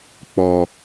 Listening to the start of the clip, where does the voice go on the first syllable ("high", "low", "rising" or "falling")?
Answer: high